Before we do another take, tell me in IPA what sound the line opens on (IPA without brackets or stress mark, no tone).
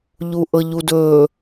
ʎ